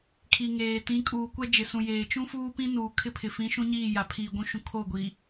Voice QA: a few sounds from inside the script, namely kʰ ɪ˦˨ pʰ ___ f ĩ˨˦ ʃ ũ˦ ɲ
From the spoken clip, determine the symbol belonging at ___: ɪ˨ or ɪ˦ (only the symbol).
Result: ɪ˨